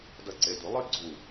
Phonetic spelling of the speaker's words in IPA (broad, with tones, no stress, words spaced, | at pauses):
dʌ˧˩ ǀe˩˧˩du˨˩˦ lˠɨ˥ ɡ͡ǀu˧˩